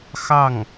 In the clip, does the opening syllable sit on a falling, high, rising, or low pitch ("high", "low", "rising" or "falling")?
falling